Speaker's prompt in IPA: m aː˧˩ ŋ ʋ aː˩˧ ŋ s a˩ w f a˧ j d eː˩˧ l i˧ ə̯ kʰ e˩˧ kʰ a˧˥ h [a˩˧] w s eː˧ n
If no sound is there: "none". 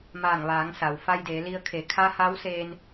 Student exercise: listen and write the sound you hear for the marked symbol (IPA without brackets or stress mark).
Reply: a˧˥